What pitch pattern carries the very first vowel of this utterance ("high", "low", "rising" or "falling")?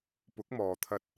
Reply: rising